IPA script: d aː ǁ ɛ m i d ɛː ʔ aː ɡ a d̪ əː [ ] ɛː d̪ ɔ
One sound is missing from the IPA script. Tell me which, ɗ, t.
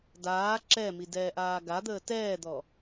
t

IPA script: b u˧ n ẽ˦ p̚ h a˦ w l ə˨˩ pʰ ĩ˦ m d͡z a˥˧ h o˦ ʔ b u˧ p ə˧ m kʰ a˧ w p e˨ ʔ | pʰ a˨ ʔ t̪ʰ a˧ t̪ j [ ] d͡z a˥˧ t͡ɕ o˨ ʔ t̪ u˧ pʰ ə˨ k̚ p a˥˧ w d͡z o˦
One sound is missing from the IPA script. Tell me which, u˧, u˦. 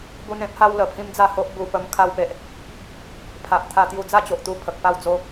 u˧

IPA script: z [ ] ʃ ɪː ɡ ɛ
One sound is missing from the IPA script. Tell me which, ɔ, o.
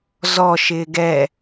ɔ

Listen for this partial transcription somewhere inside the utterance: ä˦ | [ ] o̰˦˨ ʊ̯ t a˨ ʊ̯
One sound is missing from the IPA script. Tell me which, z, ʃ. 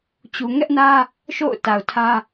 ʃ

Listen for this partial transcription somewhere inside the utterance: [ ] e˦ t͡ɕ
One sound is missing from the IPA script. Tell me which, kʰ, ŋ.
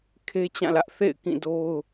kʰ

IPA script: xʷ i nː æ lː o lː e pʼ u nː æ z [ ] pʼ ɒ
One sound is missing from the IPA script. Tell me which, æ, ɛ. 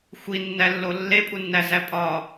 æ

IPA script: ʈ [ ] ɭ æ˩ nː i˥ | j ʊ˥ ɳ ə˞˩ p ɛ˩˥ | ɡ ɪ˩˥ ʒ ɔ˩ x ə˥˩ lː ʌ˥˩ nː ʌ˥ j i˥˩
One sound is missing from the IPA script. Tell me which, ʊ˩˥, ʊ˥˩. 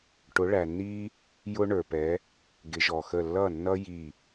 ʊ˩˥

